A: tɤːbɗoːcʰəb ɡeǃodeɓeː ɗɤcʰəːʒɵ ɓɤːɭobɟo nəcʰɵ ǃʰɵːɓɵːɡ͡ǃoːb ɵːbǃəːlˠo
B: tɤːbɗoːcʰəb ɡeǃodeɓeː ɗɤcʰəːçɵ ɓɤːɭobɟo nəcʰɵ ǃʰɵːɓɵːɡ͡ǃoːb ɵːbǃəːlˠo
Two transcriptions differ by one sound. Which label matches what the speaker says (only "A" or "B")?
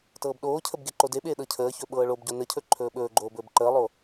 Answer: B